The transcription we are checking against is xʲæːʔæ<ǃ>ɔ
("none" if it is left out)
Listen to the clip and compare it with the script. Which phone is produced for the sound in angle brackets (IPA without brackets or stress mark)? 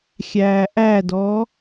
d